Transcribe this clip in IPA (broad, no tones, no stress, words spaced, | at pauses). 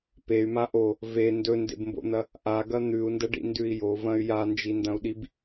pey̯ma ʔo | ve ndɵndḛbmbo̰n̪ɐ | ʔaɡɐ n̪ʉu̯ndɐɖḭndʉi̯ jovɐ̃y̯ jand͡ʒindɐ̃u̯ɗib